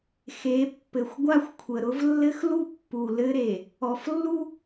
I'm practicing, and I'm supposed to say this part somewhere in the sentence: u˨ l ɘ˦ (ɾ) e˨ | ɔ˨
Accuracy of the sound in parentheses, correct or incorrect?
correct